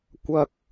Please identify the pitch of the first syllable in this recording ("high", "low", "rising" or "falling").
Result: high